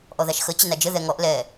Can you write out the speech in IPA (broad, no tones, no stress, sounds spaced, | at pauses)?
ʔ ɔ ð a ʃ x ə t͡ɕ ə n a d͡ʒ ə ð ɛ ŋ ɔ ʔ l ɛ